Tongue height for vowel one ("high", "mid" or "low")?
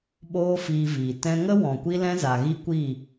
mid